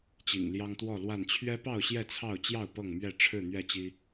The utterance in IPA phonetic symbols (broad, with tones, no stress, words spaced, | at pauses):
t͡ɕḭ˨˩ŋljɑ˦ŋt̪wɔ˥˨lwa˥˨n t͡ɕʰɥɛ˦pɑ˥˨ʊ̯ ɕjɛ˥˨t͡sʰɑ˥˨ʊ̯t͡ɕjɑ˥˨ʊ̯ pɤ˥˨ŋmɥɛ˥˨ʈ͡ʂʰɻ̩˥˨ n̪ɥɛ˥˨t͡ɕi˦